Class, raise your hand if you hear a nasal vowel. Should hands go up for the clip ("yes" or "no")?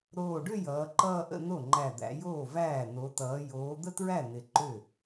no